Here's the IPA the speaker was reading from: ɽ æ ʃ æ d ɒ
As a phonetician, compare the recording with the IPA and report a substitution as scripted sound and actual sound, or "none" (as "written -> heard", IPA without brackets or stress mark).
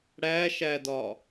none